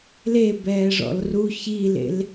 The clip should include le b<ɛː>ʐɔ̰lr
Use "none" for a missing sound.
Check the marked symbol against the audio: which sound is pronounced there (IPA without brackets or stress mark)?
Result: ɛː